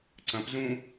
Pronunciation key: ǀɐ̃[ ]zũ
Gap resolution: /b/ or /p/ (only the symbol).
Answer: p